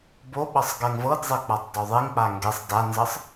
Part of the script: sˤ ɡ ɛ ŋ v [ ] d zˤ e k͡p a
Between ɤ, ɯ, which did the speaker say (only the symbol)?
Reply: ɤ